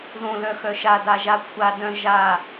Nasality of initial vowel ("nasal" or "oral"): nasal